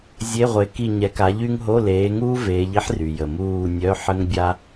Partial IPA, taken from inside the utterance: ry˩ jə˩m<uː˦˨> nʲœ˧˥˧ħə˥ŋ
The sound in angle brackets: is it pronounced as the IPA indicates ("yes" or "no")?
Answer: yes